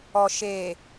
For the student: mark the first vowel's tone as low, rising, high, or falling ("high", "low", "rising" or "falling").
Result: low